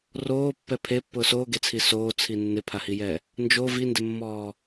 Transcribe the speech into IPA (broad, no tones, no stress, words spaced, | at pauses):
roːpːɛ pʰepːʊː soːɡet͡sʰi soːt͡sʰi nːɪpʰahijɛ | nd͡ʒo vindɪmːɔː